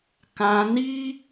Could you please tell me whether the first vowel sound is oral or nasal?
nasal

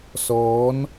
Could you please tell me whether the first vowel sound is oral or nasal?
oral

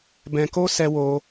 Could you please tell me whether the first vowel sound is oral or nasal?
nasal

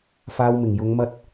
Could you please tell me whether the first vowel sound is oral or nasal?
oral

